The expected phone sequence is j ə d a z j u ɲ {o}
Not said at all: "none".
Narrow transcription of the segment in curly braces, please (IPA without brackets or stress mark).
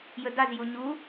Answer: u